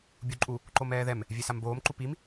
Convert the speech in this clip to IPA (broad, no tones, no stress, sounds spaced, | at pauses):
bʲ u ǃʼ u | ǃ o m ɛː ð ɛ m | vʲ e s a m b oː m ǃ u p i m